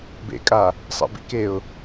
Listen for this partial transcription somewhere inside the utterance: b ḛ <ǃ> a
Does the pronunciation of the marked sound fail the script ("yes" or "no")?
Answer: yes